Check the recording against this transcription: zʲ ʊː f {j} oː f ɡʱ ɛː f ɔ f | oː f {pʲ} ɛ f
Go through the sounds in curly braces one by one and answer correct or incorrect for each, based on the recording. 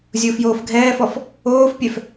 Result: correct, correct

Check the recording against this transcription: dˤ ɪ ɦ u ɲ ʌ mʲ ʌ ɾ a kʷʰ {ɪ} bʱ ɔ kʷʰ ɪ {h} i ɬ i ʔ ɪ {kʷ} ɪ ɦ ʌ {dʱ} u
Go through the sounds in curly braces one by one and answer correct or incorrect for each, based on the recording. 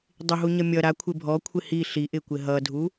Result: correct, correct, correct, correct

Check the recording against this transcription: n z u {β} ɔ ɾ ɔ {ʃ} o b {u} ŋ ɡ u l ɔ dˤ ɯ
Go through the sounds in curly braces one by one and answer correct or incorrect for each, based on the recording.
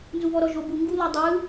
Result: correct, incorrect: ʒ, correct

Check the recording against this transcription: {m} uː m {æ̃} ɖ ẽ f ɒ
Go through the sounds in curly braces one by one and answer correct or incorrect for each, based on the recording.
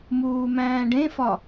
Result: correct, incorrect: æ̃ː

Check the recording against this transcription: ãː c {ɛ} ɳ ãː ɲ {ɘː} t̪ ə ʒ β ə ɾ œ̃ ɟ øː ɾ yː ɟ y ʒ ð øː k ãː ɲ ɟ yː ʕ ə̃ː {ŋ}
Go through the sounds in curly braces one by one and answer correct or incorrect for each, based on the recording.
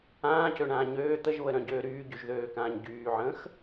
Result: incorrect: ø, incorrect: øː, incorrect: x

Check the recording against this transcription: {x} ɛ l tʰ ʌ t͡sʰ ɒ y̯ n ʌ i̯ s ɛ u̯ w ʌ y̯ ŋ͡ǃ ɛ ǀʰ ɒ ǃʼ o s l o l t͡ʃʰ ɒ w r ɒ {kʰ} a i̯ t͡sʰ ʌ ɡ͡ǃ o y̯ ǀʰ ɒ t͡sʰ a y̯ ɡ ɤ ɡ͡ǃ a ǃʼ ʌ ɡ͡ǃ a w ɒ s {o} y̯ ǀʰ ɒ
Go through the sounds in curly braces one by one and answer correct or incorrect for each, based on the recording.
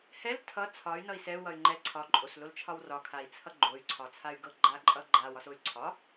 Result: incorrect: h, correct, correct

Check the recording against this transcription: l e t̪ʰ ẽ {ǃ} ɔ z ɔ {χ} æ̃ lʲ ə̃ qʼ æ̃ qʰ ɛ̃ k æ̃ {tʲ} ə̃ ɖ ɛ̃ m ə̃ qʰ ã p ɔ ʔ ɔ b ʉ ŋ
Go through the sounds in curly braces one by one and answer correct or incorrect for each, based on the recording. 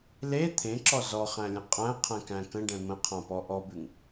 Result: incorrect: ǁ, correct, incorrect: k

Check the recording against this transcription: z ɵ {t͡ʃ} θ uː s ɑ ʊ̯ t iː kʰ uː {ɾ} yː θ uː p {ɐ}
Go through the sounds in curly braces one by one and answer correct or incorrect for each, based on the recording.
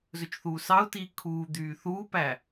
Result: correct, incorrect: d̪, incorrect: æ

